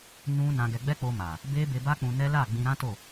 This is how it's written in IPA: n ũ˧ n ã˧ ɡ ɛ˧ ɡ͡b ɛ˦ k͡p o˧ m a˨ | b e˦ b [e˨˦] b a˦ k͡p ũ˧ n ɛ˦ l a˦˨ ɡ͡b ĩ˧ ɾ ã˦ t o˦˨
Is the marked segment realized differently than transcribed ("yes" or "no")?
yes